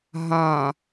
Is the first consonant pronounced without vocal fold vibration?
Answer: no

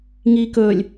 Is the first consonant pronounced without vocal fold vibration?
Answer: no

